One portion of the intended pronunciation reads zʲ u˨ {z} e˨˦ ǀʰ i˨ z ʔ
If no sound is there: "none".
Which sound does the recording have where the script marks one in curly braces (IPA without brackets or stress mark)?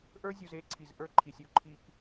z